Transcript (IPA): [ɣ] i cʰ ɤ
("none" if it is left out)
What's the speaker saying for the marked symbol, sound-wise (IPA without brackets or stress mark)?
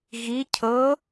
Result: ɣ